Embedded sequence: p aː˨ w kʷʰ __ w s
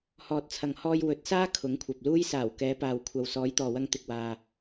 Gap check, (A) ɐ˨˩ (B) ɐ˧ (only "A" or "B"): B